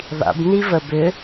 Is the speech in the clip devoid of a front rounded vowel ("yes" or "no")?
no